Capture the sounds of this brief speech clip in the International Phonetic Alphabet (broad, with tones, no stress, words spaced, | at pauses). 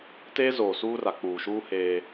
teː˦zoː˨suː˦ra˨ k͡puː˨ʃuː˦ heː˦